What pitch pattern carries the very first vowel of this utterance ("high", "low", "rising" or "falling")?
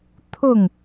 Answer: falling